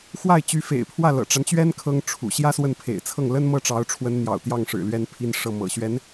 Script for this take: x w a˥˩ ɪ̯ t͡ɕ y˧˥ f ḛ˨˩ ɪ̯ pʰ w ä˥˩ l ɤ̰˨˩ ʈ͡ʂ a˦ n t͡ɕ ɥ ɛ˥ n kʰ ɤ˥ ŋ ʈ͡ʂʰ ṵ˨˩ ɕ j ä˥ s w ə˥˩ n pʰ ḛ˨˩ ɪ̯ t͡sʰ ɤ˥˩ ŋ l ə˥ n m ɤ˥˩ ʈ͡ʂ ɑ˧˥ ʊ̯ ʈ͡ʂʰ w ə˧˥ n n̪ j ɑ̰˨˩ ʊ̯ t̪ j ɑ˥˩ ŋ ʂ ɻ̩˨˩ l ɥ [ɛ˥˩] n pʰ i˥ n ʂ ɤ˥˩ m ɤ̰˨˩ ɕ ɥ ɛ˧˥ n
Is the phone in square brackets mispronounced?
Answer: yes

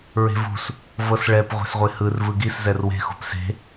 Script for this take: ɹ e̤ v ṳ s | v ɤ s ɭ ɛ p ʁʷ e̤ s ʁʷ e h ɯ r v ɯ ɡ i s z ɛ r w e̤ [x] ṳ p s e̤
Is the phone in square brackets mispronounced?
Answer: no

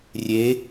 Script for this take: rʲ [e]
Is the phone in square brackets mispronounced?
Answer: no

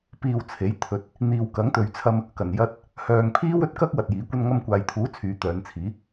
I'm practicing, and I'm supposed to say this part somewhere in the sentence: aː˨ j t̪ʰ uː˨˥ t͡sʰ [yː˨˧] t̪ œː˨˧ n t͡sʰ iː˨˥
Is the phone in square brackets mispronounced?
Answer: no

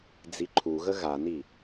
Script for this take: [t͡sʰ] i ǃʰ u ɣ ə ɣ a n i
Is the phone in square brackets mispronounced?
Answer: yes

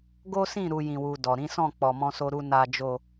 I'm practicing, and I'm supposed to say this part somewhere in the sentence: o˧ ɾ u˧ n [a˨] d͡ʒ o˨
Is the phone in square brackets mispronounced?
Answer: no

